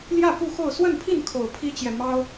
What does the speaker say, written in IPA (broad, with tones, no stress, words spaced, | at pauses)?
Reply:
ljä˥˨ pu˥˨xo˥˨ʊ̯ swə˥˨npʰi˥˨n kʰo˨˩ʊ̯pʰi˦t͡ɕjɛ˨ mɑ˦ʊ̯